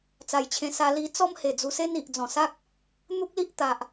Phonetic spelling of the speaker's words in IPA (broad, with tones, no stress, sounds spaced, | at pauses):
t͡s a˨˩ j t͡ɕʰ ẽ˧ s a˧ l i˧ t͡s ɔ˦ m h e˨˩ d͡z u˧ s e˦ n i˨ ʔ d͡z ɔ̃˨˩ s a˦ k̚ | n̪ u˦ k̚ l i˦ ʔ t̪ a˨ ʔ